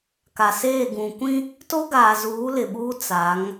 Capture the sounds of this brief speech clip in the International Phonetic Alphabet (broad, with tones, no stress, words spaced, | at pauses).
ka˨seː˦˨ ɡũ˨kʷĩ˦ | to˦ɡaː˨zuː˨˦ lɪ˨ɓuː˦ t͡sa˨˦ŋ